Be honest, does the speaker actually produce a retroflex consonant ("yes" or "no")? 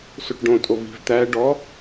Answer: yes